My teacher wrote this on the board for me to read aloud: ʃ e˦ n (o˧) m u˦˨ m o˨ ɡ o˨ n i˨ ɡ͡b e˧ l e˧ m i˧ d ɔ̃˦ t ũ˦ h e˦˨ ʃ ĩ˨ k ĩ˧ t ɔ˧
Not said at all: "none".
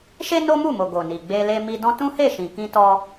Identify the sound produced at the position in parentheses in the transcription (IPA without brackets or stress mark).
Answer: o˦